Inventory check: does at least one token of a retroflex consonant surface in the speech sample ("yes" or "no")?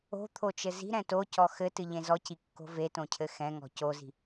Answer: no